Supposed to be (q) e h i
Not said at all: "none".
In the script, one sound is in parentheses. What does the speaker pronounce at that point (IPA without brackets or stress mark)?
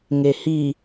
ŋ